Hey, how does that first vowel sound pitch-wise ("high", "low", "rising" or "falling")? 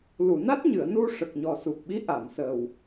low